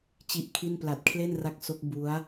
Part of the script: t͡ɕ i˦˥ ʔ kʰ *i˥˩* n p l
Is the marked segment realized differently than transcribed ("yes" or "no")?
no